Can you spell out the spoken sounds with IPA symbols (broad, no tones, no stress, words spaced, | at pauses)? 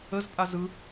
əz pʼazɯ